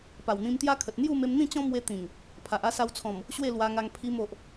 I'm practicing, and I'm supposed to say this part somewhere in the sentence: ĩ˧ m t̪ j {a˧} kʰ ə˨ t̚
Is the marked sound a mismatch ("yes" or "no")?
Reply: yes